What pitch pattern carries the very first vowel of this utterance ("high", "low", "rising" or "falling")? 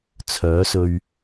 rising